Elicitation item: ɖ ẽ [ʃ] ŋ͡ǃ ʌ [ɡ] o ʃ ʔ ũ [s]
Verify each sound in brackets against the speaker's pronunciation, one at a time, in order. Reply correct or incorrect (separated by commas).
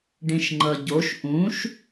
correct, incorrect, incorrect